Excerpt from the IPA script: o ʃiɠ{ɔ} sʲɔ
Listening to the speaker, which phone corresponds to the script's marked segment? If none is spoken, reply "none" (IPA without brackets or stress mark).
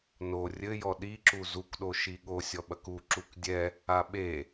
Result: o